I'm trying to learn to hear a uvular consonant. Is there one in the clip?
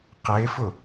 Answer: yes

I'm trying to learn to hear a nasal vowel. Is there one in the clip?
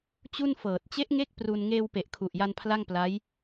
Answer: no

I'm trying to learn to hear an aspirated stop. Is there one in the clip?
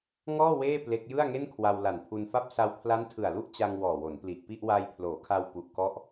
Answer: yes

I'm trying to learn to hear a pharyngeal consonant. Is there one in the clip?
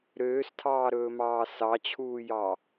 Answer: no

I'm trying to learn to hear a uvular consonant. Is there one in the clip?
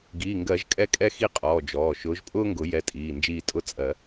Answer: yes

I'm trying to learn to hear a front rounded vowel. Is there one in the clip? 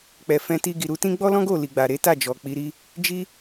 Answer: no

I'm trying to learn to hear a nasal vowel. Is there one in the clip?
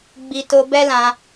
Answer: yes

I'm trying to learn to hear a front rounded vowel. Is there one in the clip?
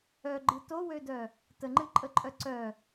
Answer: yes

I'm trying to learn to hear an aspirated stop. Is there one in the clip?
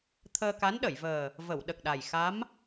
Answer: yes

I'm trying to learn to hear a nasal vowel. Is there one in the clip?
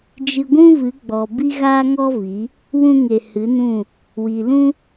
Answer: yes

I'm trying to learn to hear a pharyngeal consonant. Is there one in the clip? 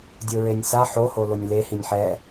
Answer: yes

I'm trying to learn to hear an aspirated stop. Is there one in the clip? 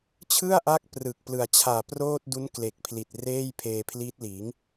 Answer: yes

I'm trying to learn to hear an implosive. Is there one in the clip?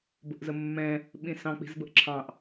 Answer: yes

